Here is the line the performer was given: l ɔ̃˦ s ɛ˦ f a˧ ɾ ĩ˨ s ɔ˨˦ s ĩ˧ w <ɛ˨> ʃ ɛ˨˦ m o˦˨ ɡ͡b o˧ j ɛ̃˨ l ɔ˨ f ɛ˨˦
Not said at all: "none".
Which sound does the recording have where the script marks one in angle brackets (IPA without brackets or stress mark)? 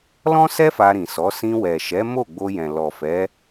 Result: ɛ˨